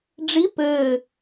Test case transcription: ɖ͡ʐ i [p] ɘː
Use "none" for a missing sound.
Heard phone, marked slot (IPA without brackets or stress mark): p